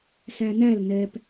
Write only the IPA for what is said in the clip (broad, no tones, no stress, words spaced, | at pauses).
sænæl nɛp